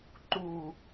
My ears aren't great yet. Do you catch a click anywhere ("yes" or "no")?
yes